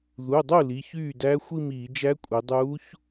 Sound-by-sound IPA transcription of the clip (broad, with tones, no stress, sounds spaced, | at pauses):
ð u˩˧˩ dˤ u˥˩ l i˩˧˩ ç yː˥˩ d æː˧˥ xʷ i˥˧ m iː˧˩˧ d͡ʒ æ˧˥ kʷʼ i˩˧ dˤ uː˧˥ ç